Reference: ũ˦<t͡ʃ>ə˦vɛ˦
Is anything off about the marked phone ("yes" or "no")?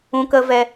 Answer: yes